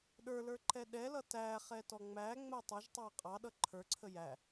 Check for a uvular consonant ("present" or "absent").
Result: present